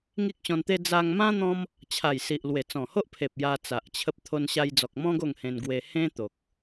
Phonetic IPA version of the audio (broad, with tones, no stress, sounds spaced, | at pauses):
ŋ i˦ k̚ ɕ ɔ̃˧ n t̪ e˦ d͡z a˧ ŋ m ã˦ n̪ ɔ̃˦ m | t͡ɕʰ a˨˩ j s i˨ ʔ l w e˨˩ t͡s ɔ̃˨˩ h o˦ ʔ pʰ e˨ p̚ j a˧ t͡s a˨ ʔ t͡ɕʰ ə˦ p̚ t̪ʰ o˧ n ɕ a˧ j d͡z ɔ˨ k̚ m ɔ̃˦ ɡ o˥˧ ŋ h ẽ˧ n ɡ w e˧ h ẽ˦ t̪ o˨ k̚